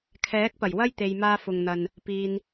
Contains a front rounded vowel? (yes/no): no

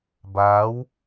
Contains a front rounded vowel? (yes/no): no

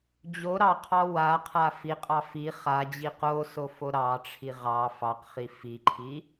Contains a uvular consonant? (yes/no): yes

